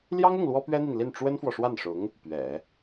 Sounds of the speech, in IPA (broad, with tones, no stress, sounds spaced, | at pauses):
l j ɑ˥ ŋ ʊ˥˩ ŋ l w ɔ˥ p ɥ ɛ˥ n̪ i˨ n l i˥˩ n ʈ͡ʂ w ə˥ n f w ɔ˨ ʂ w a˥˩ n ʂ ʊ˧˥ ŋ | p ɥ ɛ̰˨˩˦